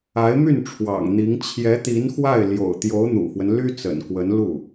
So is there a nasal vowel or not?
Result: no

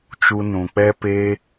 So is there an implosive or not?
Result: no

